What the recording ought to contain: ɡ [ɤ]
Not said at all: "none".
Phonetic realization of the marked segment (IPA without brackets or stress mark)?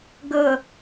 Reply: ɤ